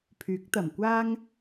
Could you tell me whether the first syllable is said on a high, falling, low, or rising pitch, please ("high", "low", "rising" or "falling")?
rising